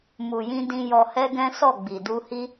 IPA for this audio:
mu˨jĩ˧dĩ˧ jɔ˧hɛ˦ɡɛ̃˦ sɔ˦˨ɡ͡bi˨ du˧hi˦

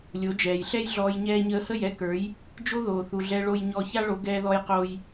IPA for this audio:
lʲo˩˥d͡ʒɛː˩jɬɛ˥jɮɔː˧j ɲɛː˧ɲəː˧hə˥˩jɛ˥ kə˞˩˥j | d͡ʒo˥ðoː˩θu˩ɮɛ˧ ɭo˧jɲɔ˧ça˥ ɭo˩˥ ɡɛː˧ðɔ˧jqoː˧j

